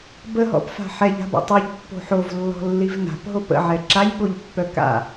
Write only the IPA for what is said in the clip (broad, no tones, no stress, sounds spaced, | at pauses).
b ə ɦ ɔ̰ p f a̤ ħ ɛ ʎ a̤ b a̰ tˤ o ʎ pː o̤ ħ o v lː ɔ̤ lː i v n a̤ p ɦ o p ə̰ ʕ ɛ ǁ a ʎ ɠ o ʎ pː œ k a̰